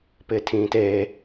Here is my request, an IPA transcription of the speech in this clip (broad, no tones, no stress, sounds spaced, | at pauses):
p ɪː tʰ ĩː t eː